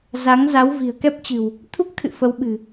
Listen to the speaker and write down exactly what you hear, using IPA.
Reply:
z a˨˦ ŋ z a˨˦ w v i̤˨˩ ə̯ k ɛ˦˥ p̚ t͡ɕ ɨ̤˨˩ w | t̪ʰ u˦˥ k̚ t̪ʰ ɨ̰˧˨ f ə˨˦ w ɓ ɨ̤˨˩

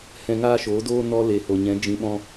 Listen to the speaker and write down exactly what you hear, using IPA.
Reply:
h ɛ̃˧ ŋ aː˦ ʃ oː˨˦ d oː˦ n ɔ˧ l e˨ h o˨ ɲ ɛ̃˨˦ d͡ʒ ĩ˧ ɓ ɔ̃˦

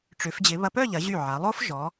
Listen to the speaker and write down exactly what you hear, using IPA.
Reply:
ʈ͡ʂ ʏ˩˧ f d͡ʑ ɪ˩˧ β ɐ˧ p œ˥˧ ʎ ɐ˩˧ ʑ y˧˩ ʕ a˩˧ lˠ o˥ f ʒ ɔ˩˧

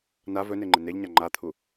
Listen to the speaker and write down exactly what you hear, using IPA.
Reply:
n a v ɵ n e ŋ͡ǃ ɪ n e ʎ ɲ a ŋ͡ǃ a t̪ʰ u

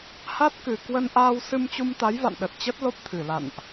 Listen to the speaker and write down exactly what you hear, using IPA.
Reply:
h a˦˥ t̚ k ɨ˨˩ k w ə˧ n ʔ aː˧ w s ɨ˧ m t͡ɕ u˧ m t̪ a˨˦ j v a̰˧˨ n ɗ ə˨˩ t̚ t͡ɕ ə˦˥ t̚ l o˦˥ p̚ t̪ʰ ɨ˨˩ l a̰˧˨ n ʔ

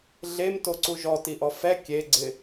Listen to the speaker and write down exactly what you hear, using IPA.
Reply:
ɮ e m t o ǀ u ʒ ɔ t i ʔ ɔ f ɛ kʲ e ɡ͡ǀ ɪ

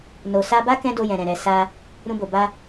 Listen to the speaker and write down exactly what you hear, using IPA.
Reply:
n o˨ s a˧ b a˦ k ɛ̃˦ d o˧ j ɛ̃˨ ɾ ɛ̃˨ ɾ ɛ˨ s a˧ | ɾ ũ˧ b o˨ b a˧

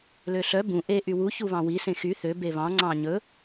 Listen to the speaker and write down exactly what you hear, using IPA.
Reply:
l ø ɬ œ b ũ ʔ e ʔ y w u ç u β ɑ̃ w i s ẽ x y θ ø b e β ɑ̃ ŋ͡ǀ ɑ̃ ɲ ɵ

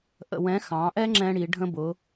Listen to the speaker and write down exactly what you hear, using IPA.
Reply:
ʔ ə̰˧ w ɛ̃˧˥ x ɑ̃˩˧ ʔ ɛ˥ ŋ͡ǁ ɛ̃˧ ɽ i˩˧ ɖʱ ə̃˧ b ʊ˩˧

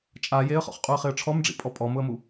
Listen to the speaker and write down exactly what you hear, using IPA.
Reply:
t͡ʃʼ a j e ə̯ χ ɔ̰ χ qʼ u ə̯ χ ɪ ə̯ ʈ͡ʂʰ ɔ m ɖ͡ʐ ḭ pʼ ɔ pʼ ɔ m ʊ ə̯ m u

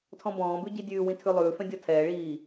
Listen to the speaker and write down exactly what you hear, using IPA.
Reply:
tʰ ɔ̃ b ɔ̃ː b ʉ ɟ i dʲ ʉː w ĩ tʰ ʉ lˠ ʉː f ɛ̃ dʲ ɔ tʰ ɛː ɭ iː

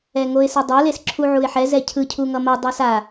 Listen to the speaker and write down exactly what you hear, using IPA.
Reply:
ɛ ŋ o ɪ̯ s ɯ dˤ ʌ l e s ǁʰ u ʕ u ɪ̯ ħ ɛ z ɛ cʰ ɯ cʰ u ŋ ʌ m ʌ dˤ ɯ s a

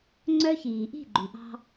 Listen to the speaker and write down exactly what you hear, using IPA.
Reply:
ŋ͡ǀ œ˦ ç iː˨ ʔ i̤˦˨ ɡ͡ǃ y˨ ʔ ɑ̤˦

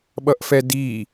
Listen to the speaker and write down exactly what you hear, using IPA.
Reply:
ɓ ʌ ʔ f ɛ d i

